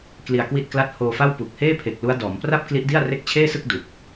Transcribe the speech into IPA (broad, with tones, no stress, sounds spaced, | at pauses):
k l i˧ a̯ k w i˥˩ t̚ k l a˥˩ t̚ h oː˧ f a˥˩ w p u˨˩ k̚ h eː˥˩ pʰ e˨˩ k̚ l u˦˥ a̯ d ɔː˩˦ m p r a˥˩ p̚ k l i˦˥ ʔ d i˥˩ a̯ r e˦˥ k̚ t͡ɕʰ eː˥˩ s ɯ˥˩ k̚ d u˨˩ k̚